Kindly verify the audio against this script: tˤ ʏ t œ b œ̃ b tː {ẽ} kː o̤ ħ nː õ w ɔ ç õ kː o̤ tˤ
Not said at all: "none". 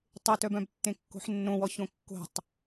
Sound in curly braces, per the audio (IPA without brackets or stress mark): ẽ